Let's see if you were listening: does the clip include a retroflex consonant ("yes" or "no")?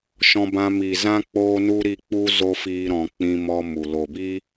no